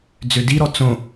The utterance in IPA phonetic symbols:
d͡z ø d i ɾ ɔ t͡s õ

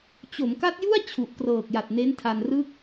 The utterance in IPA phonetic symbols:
t͡ɕ o˩˦ m k a˦˥ t̚ j u˥˩ a̯ t͡ɕʰ u˨˩ ʔ k r ɤː˨˩ k̚ j a˨˩ t̚ n e˦˥ n tʰ a˧ n r ɯː˥˩ k̚

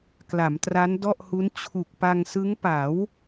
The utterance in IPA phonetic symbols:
k l a˩˦ m t r a˦˥ n d ɔ˥˩ ʔ h u˦˥ n t͡ɕʰ u˨˩ k̚ p a˧ ŋ s ɯ˦˥ ŋ p a˩˦ w

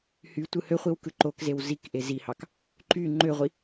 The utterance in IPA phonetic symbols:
h y tʷ ɯ h ø χʷ i w k ɯ ǃ o k z e w z i k ʔ e z i h ɑ k | ǃ y ŋ͡ǃ ø ʁʷ i

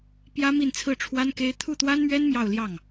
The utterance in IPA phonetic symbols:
p j ä˥ m i˥˧ n t͡sʰ ɹ̩˥˩ ʈ͡ʂʰ w a˥ n k e˥ ɪ̯ t̪ʰ u˥˩ t̪ w a˥ n m ɥ ɛ˥ n m j ɑ˥˧ ʊ̯ l j ɑ˥˩ ŋ

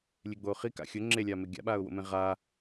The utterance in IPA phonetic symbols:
lʲ e ɡ͡b oː χ i k a̰ xʲ ʊ ŋ͡ǁ e lʲ aː m e ɡʲ a̰ ɓ aː ʊ̯ w o̰ m ẽ ʁ a

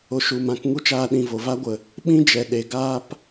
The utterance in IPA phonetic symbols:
o˧ ʃ u˨ m ã˨˦ k ŋ u˦ t͡ʃ aː˧ ɗ ĩ˨ v o˨ v a˦ ɡʷ ə˨ | ɓ ĩ˦ d͡ʒ ɛ˨ ɗ e˨ ɡ aː˦ p

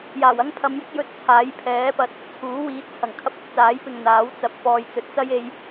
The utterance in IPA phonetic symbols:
j aː˨˩ w ɐ˥ ŋ pʰ ɐ˨˧ m j ɪ˥ k̚ j ɵ˧ t̚ t͡sʰ aː˨˥ j pʰ ɛː˨˥ p ɐ˨˥ t̚ | t͡sʰ uː˨˥ w iː˨˥ t̚ t͡sʰ ɐ˨˩ ŋ kʰ ɐ˥ p̚ ɐ˧ k̚ t͡s aː˨˥ j p ɪ˨ ŋ n̪ aː˨˥ w t͡s ɐ˨ p̚ f ɔː˨ j t͡s ɵ˨˥ t̚ t͡s ɐ˥ j e˧ j

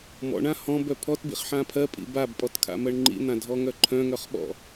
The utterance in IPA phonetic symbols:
m ɔ̰ ɳ ã h ɔ̃ b œ pʰ ɔ t b ḭ χ ħ ã pʰ ɜ pʼ ḭ b a b pʼ ɔ t kʰ a̰ m ɜ ɳ ŋ͡ǃ ḭ n̪ ã dʱ ɔ ŋ œ ǃʰ œ̃ ŋ œ χ ɓ ɔ̰

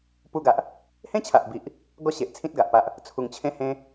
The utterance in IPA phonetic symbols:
p u˧ ɡ a˨ ʔ | h ẽ˦ t͡ɕʰ a˨ ʔ b i˨ ʔ | ɡ ɔ˥˧ ɕ e˨ ʔ t͡sʰ ĩ˦ t̚ ɡ a˨ ʔ p a˦ ʔ | t͡sʰ u˨˩ ŋ t͡ɕʰ ẽ˦ h ẽ˦

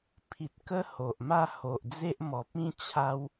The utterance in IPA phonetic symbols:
pʰ i˨ t̚ k ə˦ h o˨ ʔ m a˥˧ h o˨ ʔ d͡z e˦ ʔ m ɔ˨ p̚ ĩ˦ t͡ɕʰ a˦ w

